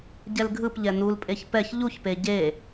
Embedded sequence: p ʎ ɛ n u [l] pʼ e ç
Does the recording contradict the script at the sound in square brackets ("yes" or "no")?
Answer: no